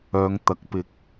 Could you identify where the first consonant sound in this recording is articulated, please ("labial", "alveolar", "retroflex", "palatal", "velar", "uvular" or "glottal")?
velar